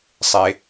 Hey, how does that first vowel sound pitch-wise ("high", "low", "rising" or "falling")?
high